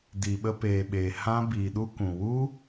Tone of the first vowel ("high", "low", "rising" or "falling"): low